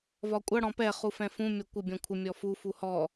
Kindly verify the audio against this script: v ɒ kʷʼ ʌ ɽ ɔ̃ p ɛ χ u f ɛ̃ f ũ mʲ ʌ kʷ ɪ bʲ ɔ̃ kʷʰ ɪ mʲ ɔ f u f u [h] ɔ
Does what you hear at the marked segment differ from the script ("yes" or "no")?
no